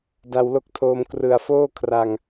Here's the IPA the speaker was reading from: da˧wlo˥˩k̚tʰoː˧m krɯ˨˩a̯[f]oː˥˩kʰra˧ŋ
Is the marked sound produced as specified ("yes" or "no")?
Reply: yes